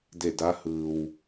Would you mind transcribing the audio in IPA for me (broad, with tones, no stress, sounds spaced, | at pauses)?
d e˧˩ d a˧˥ h ɯː˩ w